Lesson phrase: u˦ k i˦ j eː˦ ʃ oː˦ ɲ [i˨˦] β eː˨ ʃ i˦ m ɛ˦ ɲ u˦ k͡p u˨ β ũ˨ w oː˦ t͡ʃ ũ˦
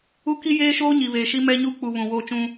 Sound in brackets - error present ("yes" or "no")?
yes